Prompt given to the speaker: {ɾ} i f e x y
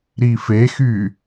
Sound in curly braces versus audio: correct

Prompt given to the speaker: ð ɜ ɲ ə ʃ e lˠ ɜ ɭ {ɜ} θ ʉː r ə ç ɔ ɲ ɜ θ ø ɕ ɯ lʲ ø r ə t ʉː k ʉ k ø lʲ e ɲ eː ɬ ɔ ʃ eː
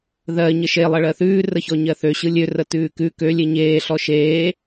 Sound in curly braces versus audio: correct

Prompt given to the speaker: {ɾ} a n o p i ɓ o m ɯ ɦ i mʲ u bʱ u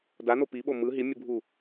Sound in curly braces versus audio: incorrect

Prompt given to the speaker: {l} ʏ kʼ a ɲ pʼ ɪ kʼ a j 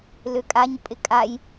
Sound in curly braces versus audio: correct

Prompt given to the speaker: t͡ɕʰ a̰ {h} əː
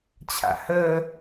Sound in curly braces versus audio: correct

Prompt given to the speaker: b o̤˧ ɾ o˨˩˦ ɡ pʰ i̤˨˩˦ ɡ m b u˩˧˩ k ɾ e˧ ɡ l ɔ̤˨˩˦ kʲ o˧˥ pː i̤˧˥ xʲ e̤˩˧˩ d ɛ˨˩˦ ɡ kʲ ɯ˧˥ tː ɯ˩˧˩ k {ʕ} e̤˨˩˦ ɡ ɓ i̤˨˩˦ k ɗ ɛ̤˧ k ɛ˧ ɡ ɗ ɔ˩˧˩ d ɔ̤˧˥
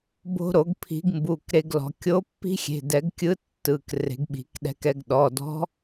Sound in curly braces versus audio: incorrect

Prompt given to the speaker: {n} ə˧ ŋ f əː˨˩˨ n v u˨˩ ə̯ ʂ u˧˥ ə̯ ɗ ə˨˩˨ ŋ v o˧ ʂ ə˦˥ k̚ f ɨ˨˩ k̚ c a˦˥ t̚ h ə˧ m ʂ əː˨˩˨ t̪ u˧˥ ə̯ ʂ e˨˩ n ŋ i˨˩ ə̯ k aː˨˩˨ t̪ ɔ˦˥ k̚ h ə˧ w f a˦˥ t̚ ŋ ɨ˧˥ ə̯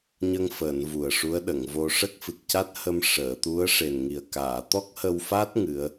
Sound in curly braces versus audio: incorrect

